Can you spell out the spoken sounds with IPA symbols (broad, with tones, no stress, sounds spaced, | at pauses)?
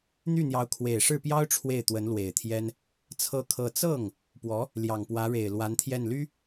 n̪ y˥˩ n̪ j ɑ˧˥ ʊ̯ kʰ w e˨˩ ɪ̯ ʂ ɻ̩˥˩ p j ɑ˥ ʊ̯ ʈ͡ʂʰ w e˥˩ ɪ̯ t̪ w ə˧˥ n l w e˨˩ ɪ̯ t̪ʰ j ɛ˥ n | t͡sʰ ɤ˥˧ kʰ ɤ˥˧ t͡s ɤ˥˩ ŋ | p w ɔ˧˥ | l j ɑ˨˩ ŋ p w ä˧˥ ɻ e˨˩ ɪ̯ l w a˧˥ n t̪ʰ j ɛ˥˩ n l y˥